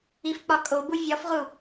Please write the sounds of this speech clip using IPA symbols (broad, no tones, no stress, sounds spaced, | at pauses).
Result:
i f k͡p ɒ kʼ o b u vʲ ɒ f ʁ u